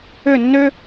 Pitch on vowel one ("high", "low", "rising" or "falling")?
falling